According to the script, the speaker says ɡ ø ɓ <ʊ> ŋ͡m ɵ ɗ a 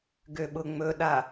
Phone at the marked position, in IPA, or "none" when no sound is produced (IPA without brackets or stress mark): ʊ